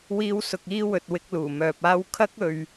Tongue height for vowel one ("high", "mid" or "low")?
high